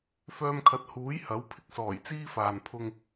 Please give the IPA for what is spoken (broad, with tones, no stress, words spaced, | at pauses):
fœː˧mkʰɐ˨˥t̚huː˨˥j hɐ˨˥w pʰɪ˧k̚sɔː˨˩jt͡siː˥ faː˨npʰʊ˧ŋ